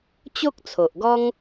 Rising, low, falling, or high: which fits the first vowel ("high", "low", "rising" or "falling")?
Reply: high